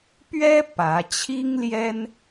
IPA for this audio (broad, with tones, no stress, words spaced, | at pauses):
pɥɛ˥ pä˧˥ t͡ɕʰi˥ŋljɛ˥n